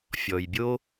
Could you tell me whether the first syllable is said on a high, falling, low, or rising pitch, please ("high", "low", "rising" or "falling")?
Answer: low